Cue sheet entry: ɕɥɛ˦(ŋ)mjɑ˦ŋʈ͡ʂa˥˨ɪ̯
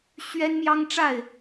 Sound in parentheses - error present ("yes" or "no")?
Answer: yes